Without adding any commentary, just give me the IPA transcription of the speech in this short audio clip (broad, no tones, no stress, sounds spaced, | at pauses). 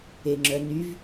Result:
e ŋ͡ǁ œ n y v